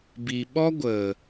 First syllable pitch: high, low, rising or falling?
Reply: low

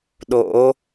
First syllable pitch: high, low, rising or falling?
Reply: rising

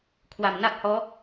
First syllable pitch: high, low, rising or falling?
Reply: low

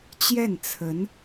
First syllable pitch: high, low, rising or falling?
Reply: falling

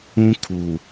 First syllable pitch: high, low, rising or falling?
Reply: high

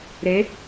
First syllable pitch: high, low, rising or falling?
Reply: rising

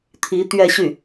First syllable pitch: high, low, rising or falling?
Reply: rising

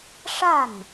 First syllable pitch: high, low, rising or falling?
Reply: falling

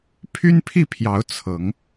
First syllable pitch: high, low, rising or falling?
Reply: high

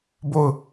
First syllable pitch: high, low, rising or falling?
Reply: falling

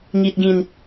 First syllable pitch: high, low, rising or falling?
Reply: low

